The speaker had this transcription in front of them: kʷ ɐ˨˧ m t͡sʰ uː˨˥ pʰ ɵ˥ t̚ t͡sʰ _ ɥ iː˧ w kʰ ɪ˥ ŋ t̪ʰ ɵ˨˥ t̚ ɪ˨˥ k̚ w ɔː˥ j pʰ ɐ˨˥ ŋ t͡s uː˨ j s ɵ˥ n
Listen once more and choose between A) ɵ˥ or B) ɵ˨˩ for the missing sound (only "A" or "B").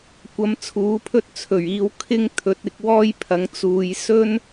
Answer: B